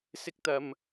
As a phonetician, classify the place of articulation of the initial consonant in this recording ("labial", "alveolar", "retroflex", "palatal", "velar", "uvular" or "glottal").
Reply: alveolar